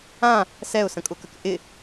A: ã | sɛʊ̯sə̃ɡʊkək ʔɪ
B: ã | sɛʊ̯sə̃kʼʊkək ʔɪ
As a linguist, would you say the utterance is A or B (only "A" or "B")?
B